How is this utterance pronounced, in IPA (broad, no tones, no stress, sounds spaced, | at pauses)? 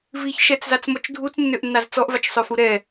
v i ç ʃ ɛ t͡s z ɑ t͡s m ɔ t͡ʃ dʱ u t͡s nː ø ʔ nː ɑ z t͡s ɔ ʔ v ɑ t͡ʃ sˤ ø f u ɾ ɛ